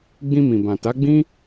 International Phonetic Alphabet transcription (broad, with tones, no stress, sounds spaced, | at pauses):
ɡ͡b ĩ˧ m ĩ˨ b ã˨ t a˨˦ ɡ͡b ĩ˦